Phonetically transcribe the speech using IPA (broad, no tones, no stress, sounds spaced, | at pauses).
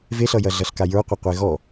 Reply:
v e ɬ ʌ j ɐ ɮ ʌ ɬ k a j ə˞ qʷ ʌ qʷ e ɣ ɔ